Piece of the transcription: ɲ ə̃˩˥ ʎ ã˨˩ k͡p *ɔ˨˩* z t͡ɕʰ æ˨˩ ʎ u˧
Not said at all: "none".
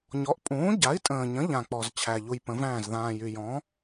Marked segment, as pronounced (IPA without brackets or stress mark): ɔ˨˩